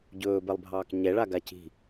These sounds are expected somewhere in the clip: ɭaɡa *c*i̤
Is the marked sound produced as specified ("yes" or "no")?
yes